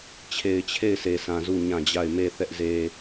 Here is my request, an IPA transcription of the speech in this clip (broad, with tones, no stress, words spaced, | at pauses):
t͡ɕʰe˨ɪ̯t͡ɕʰe˦˨ɪ̯sʰe˨sʰã˨ zu˦˨ɲã˦˨d͡ʑa˦˨ɪ̯ me˦˨ θɛ˦ʔze˦